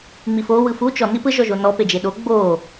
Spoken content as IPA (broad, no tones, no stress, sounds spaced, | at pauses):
ŋ͡m i f o w ɯ f u t͡ʃ ɔ n i p ɯ ʒ ɔ ʒ o n ɔ p e d͡ʒ e ɗ o ɡ͡b o